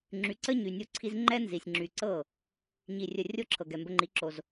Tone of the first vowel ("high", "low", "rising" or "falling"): rising